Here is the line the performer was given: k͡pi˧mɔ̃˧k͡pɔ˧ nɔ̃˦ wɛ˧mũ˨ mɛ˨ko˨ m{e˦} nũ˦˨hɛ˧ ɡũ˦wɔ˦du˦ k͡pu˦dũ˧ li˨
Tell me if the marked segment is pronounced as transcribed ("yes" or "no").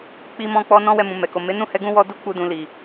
no